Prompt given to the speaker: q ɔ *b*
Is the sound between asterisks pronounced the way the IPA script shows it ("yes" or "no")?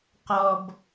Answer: yes